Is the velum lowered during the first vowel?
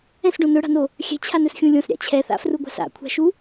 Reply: yes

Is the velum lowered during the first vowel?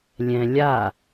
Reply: yes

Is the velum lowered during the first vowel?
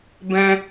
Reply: yes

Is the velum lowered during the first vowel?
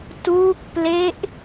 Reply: no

